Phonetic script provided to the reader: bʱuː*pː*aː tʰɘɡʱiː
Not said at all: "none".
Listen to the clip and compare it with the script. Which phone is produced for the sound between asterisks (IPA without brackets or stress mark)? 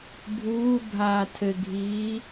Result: bʱ